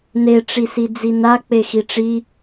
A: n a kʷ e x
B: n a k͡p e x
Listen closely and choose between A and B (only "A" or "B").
B